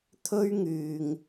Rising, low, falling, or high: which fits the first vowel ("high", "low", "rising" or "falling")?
high